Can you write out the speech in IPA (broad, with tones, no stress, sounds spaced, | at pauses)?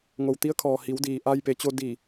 ŋ o˩ w t̪ i˧˥ ə̯ kʰ ɔː˩ h i˩˧ w d iː˩ ʔ a˧ j p e˩˧ t͡ɕ o˧ d i˧˩